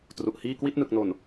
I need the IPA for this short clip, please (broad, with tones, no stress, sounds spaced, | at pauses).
t r u˨˩ ʔ h iː˥˩ k w i˥˩ t̚ n ɯ˨˩ k̚ n o˨˩ n